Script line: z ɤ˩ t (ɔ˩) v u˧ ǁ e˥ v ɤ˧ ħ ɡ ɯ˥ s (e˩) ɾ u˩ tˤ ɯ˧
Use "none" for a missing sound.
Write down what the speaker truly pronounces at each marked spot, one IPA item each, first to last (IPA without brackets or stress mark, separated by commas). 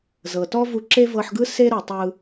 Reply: ɔ˥, e˥